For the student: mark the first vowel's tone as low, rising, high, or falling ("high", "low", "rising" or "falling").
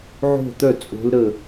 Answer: falling